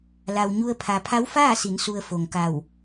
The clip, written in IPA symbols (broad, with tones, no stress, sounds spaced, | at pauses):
l a˩ w ɲ u˧ ə̯ pʰ a˩ pʰ a˧˥ w f aː˥˨ s i˩˧ n s u˩ ə̯ f o˩ ŋ k a˧˩ w